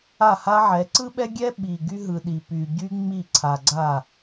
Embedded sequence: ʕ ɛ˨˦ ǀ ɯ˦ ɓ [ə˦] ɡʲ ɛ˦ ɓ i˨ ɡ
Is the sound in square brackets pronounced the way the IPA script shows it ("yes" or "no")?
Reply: no